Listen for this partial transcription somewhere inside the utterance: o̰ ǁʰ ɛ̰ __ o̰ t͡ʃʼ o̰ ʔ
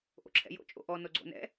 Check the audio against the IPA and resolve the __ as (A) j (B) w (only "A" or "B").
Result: A